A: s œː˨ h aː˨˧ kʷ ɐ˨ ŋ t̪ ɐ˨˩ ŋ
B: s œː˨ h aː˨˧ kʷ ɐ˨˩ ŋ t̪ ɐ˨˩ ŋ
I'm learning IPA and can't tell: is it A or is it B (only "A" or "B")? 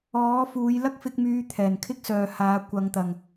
A